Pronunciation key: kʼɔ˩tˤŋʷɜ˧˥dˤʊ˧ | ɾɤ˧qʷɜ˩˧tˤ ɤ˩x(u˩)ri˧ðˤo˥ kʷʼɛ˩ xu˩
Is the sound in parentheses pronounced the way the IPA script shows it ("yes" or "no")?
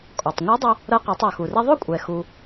yes